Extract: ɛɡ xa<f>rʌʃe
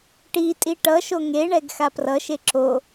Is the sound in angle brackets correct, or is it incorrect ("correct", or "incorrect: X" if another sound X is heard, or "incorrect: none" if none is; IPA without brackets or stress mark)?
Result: incorrect: p